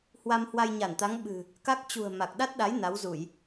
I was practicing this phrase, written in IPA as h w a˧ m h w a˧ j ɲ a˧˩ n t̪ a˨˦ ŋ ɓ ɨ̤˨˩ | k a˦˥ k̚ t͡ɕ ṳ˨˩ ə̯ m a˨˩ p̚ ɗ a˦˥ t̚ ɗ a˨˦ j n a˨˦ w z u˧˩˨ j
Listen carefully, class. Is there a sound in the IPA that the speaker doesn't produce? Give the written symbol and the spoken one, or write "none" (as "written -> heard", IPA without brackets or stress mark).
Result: p̚ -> k̚